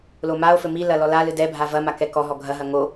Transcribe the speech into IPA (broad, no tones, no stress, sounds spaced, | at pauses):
l o m a o̯ f ɘ m i l ɐ l ɔ l a l ɨ d ɛ bʱ a v ɐ m a k ɛ k ɔ ɦ ɔ ɡʱ ɐ ɦ ɐ ŋ o